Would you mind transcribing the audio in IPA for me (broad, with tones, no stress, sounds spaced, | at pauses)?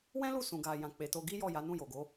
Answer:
w ɛ̃˦ l u˦˨ s ũ˨ ɡ a˨ j ã˨ k͡p e˨ t o˧ ɡ i˦ j ɔ˦˨ j a˨˦ n ũ˦˨ j o˨ ɡ o˨˦